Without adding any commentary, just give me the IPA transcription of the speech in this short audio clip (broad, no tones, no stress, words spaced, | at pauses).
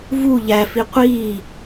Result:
vu ʎæfi qʷi